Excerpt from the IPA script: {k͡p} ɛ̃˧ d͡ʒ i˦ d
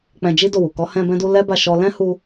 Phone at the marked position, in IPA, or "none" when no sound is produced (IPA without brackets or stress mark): k͡p